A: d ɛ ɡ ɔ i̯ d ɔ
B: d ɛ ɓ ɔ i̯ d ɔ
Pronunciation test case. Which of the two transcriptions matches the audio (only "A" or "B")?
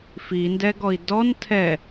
A